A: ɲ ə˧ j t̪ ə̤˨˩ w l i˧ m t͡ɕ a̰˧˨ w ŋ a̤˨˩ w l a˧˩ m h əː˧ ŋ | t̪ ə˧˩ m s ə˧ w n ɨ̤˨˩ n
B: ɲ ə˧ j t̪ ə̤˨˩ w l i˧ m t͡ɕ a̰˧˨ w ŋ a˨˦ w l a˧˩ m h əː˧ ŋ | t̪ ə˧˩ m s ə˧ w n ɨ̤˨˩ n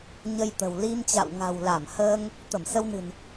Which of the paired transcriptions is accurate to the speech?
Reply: A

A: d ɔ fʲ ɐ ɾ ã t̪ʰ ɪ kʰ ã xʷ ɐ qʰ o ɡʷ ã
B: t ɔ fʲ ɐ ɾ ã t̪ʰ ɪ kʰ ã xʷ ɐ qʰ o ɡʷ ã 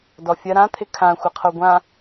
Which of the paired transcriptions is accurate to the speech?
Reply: A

